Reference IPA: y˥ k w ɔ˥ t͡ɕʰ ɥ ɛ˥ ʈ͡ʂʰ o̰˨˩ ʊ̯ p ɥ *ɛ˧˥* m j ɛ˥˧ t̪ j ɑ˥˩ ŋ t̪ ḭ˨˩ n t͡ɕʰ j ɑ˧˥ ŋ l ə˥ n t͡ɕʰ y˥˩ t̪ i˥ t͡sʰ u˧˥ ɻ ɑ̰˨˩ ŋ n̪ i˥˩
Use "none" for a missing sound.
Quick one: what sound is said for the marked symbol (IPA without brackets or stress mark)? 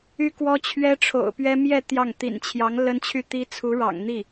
ɛ˥